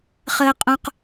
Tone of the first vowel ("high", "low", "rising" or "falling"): high